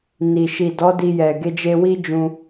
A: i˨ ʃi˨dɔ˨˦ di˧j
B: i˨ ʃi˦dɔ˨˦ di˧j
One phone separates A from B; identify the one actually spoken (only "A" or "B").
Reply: A